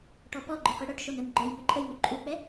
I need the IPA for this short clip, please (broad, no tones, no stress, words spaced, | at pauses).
ʈɔpɔɡ͡ǃøqi ɽœʈʃon œnɡ͡ǃœj nyǃʼəjnu ǃʼuk͡pɛ